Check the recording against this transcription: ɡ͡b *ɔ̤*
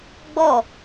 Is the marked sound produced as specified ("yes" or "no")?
no